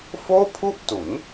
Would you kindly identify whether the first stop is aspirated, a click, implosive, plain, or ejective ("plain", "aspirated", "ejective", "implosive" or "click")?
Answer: aspirated